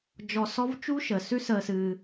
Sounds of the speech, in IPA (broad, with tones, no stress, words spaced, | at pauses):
d͡ʒɔ˧sɔ˥v t͡ʃu˥ʃəː˩ sʉ˥səː˧sɨː˧